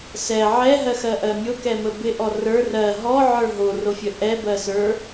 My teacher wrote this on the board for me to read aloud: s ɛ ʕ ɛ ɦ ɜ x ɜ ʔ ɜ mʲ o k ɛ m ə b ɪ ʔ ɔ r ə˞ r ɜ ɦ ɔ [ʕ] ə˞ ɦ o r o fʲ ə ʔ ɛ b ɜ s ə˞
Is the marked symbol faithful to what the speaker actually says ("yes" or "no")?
yes